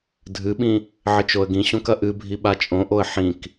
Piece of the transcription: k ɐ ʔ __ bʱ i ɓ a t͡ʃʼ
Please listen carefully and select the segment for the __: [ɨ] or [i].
ɨ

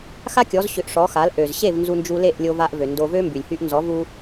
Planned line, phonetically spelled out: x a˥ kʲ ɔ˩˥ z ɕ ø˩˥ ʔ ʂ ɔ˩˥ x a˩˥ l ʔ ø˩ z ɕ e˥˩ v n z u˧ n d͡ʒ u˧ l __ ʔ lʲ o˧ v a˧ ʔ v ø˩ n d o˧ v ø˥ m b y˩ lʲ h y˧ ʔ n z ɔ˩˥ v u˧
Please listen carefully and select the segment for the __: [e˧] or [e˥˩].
e˥˩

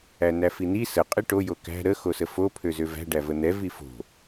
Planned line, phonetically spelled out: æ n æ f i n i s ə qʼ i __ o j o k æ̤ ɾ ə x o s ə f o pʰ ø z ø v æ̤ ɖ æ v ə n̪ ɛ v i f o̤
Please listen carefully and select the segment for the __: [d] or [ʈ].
ʈ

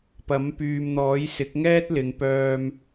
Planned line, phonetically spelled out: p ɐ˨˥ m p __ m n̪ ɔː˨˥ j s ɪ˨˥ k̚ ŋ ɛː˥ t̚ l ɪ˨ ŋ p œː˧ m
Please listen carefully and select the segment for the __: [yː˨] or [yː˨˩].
yː˨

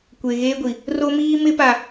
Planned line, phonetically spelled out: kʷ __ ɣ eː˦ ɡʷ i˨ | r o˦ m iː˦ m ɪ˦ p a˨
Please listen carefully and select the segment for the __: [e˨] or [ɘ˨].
e˨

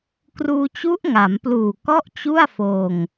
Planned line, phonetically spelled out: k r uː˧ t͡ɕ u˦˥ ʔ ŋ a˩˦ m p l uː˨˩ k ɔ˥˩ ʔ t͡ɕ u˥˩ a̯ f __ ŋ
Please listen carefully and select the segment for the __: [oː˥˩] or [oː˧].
oː˧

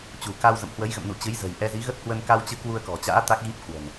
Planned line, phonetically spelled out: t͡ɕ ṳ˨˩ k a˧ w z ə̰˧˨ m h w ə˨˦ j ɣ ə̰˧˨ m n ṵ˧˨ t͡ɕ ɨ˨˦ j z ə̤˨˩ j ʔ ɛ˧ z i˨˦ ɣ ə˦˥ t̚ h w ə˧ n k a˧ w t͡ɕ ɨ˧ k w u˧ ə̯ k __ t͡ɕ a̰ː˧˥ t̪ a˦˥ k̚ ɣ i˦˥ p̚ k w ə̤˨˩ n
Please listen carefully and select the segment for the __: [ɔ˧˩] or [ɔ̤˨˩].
ɔ̤˨˩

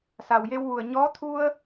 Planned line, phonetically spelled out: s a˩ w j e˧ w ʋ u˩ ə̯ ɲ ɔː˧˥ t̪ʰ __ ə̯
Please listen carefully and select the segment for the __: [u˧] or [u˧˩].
u˧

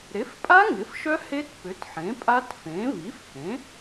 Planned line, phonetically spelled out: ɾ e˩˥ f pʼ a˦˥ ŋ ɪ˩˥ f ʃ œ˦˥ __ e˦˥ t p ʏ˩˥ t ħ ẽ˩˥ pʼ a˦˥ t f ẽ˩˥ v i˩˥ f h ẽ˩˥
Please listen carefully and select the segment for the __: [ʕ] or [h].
h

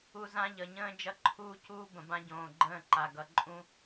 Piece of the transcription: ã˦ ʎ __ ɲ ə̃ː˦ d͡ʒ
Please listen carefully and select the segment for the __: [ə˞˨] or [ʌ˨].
ʌ˨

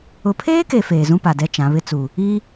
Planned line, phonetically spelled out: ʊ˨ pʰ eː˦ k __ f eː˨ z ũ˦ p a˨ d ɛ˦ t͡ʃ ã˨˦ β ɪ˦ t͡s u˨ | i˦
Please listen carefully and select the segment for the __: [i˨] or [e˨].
e˨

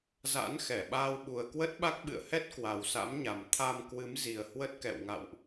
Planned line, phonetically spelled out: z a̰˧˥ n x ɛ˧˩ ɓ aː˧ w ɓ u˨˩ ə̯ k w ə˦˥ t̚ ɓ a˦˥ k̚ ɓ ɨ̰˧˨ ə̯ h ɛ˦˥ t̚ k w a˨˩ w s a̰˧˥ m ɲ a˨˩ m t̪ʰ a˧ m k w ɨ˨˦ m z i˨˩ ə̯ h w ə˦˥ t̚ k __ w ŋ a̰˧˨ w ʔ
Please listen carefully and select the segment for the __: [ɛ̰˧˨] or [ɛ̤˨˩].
ɛ̰˧˨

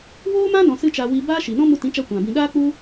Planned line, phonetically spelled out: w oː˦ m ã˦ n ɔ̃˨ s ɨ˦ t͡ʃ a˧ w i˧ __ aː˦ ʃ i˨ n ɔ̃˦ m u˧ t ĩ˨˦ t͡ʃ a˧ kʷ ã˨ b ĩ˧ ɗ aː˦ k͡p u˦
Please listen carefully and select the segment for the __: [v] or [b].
b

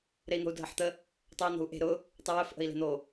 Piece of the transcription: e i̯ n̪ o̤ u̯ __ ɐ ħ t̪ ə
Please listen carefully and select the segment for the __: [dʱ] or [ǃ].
dʱ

